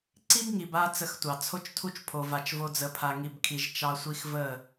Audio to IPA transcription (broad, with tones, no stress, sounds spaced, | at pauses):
ǀ i˦ b ŋ i˨ b a˧ t͡s ə˧ x tʷ ɑ˨ t͡sʰ o˦ t͡ʃ tʰ u˦ t͡ʃ pʰ o˧ v a˧ t͡ʃ v o˦ d͡z ə˧ pʰ a˧ ŋ i˧ b kʰ i˧ ʒ t͡ʃ ɑ˦ sʷ i˦ x v ə˦˨